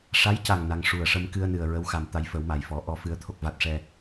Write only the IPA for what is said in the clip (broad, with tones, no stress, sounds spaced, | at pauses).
ʂ a˧˥ j c a˨˩ ŋ n a˧ ŋ ʂ u˨˩ ə̯ ʂ ə˧ m k ɨ˧ ə̯ n ɨ˨˩ ə̯ ɹ ə˧˥ w x a˨˩ m t̪ a˧ j f ə˨˩˦ w m a˨˩ j f ɔ˨˩˦ ʔ ɔ˧ f ɨ˨˩˦ ə̯ t̪ʰ o˨˩ k̚ v a˨˩ t̚ ʂ ɛ˨˩